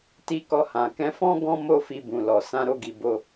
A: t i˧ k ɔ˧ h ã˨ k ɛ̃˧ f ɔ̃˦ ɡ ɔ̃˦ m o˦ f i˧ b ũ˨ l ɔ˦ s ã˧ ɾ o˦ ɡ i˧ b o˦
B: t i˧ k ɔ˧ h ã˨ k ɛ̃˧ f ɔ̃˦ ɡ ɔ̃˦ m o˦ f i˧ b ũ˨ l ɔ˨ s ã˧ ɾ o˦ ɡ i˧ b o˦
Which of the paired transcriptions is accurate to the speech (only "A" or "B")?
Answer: B